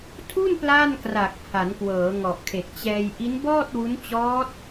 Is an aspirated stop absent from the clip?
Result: no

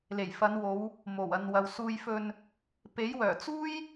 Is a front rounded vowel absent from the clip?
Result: no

